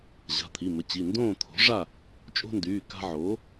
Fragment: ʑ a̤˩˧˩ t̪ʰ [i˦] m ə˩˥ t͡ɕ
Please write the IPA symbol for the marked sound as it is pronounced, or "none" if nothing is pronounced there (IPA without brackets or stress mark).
i˩˧˩